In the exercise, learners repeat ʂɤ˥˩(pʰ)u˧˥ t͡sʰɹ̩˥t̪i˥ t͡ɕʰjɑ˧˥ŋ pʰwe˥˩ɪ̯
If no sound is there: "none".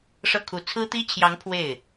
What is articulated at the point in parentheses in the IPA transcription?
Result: kʰ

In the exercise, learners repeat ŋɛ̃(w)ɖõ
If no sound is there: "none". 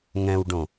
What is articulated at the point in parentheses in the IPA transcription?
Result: w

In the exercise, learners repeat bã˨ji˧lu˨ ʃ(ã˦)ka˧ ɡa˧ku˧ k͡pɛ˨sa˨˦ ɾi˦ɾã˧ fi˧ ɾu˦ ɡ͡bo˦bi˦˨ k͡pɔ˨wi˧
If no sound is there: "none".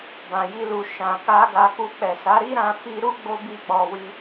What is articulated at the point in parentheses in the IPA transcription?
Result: ã˨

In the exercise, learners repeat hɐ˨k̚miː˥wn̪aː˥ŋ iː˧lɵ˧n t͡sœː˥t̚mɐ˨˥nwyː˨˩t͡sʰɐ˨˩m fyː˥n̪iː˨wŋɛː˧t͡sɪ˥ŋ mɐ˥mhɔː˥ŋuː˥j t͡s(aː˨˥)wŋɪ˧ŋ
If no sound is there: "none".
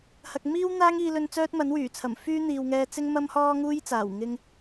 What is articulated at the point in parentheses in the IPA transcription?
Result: aː˨˩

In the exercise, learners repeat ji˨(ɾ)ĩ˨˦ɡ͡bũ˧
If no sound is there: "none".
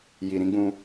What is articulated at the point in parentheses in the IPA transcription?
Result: ɾ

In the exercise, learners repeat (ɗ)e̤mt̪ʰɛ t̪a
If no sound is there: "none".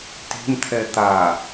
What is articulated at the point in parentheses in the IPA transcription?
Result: t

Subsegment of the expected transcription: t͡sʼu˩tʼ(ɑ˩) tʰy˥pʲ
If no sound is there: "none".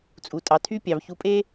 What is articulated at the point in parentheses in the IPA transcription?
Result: ɑ˩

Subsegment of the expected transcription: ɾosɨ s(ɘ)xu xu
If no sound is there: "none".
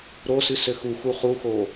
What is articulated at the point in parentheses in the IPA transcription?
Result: ɘ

